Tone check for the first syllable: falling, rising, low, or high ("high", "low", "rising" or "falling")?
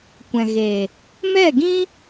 low